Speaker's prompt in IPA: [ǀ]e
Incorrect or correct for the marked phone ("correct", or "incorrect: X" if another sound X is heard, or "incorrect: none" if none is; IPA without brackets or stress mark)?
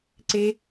correct